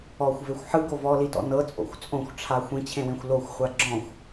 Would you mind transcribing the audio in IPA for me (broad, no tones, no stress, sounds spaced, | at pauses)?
ɔ xʷ v e xʷ ħ ɯ ɡ o v ɔ l i t ɔ̰ n ɤ t͡sʼ o̰ xʷ t͡sʼ õ xʷ ʈ͡ʂʰ a xʷ ĩ t͡ɕʰ ẽ w ẽ xʷ l o xʷ χʷ a ɡ͡ǁ ɔ̃ xʷ